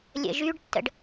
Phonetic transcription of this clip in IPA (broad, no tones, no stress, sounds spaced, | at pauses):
lʲ ə̰ ʒ y ɖ tː ə̰ ɖ